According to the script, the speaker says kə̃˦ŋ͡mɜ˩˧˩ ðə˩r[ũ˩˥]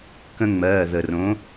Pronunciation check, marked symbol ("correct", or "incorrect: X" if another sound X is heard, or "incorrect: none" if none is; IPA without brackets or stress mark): incorrect: õ˩˥